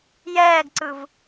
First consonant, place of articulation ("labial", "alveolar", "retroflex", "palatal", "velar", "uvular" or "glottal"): palatal